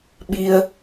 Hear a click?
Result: no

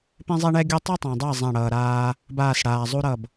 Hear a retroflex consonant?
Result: yes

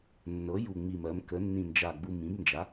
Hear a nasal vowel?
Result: yes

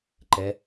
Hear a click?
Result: yes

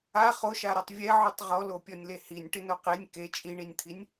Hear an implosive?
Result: no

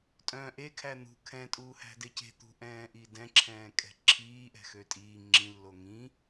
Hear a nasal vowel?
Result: yes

